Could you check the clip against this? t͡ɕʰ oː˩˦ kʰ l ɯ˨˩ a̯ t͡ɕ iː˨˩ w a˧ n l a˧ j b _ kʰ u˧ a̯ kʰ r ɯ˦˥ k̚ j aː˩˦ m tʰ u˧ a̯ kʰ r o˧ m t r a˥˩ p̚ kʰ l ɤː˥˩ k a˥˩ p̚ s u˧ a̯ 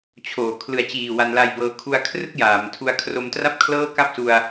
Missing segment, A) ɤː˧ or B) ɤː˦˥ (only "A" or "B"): A